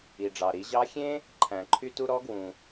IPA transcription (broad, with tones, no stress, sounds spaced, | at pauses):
i˩ ɖ͡ʐ ɑ˩ ɾ i˩˧ ʑ ɑ˧˥ xʲ ẽ˥ | ǃʰ æ̃˩ ǃʰ y˧ t u˧ ɾ ɔ˧˥ ɡ w ũ˩